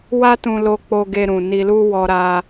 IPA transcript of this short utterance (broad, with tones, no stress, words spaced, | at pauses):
wa˦tũ˧lo˧ k͡po˧ ɡe˧ɾũ˨ ni˧lu˦wɔ˧ɾa˧